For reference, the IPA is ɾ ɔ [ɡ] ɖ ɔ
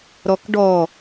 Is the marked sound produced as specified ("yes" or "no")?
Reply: no